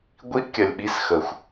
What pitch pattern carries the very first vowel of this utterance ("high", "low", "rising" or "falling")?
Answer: high